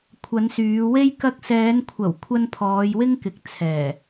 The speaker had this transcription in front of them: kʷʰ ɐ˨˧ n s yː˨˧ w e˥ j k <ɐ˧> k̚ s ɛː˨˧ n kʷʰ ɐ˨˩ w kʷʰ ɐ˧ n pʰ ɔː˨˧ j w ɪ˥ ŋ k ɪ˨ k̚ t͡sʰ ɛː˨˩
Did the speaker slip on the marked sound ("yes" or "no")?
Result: no